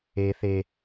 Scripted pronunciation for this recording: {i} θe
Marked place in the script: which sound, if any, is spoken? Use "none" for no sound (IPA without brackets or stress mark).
e